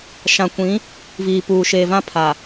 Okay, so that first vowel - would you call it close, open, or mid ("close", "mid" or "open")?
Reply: open